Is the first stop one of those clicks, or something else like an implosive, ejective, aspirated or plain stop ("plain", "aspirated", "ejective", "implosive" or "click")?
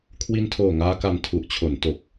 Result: aspirated